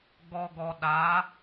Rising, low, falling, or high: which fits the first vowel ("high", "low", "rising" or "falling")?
low